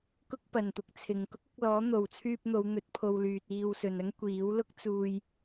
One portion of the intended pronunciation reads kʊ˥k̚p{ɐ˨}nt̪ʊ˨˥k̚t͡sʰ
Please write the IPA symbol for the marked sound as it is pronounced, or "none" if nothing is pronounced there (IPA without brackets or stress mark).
ɐ˨